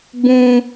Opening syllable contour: high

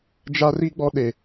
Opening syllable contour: high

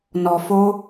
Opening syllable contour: low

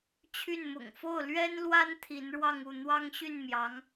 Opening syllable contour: falling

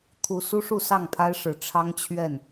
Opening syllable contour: rising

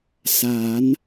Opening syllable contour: rising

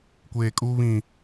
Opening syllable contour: low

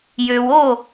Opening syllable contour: low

